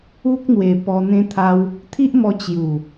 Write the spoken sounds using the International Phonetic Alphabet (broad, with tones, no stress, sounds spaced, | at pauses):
u˦ k̚ n̪ w e˨˩ p ɔ˧ n̪ ẽ˦ t̪ʰ a˦ w | t̪ʰ i˦ ʔ m ɔ˧ t͡ɕ j u˨˩